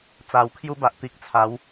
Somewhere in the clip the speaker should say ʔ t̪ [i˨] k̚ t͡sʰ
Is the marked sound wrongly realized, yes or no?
no